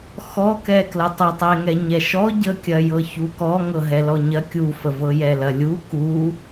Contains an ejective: no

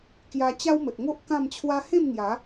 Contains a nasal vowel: yes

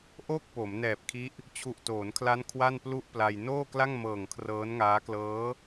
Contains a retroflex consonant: no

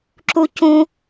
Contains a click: yes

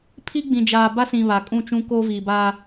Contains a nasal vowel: yes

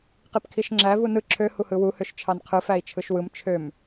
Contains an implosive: no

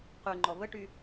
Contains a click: yes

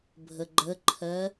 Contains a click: yes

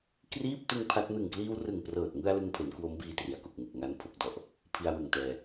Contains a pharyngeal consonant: no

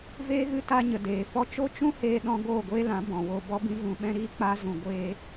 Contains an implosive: yes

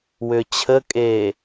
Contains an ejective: yes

